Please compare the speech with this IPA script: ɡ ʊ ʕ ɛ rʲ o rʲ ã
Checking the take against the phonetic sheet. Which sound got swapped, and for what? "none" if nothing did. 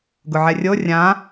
none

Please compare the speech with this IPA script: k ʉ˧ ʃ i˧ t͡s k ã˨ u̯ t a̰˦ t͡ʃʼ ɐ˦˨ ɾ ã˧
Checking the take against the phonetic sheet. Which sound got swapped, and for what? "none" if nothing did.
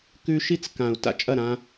none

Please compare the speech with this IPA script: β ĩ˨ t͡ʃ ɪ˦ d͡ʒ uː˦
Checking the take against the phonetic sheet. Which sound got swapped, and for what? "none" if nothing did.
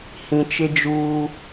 β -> h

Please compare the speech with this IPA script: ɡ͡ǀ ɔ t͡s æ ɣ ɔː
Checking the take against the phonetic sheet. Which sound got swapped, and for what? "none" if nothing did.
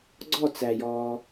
ɣ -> j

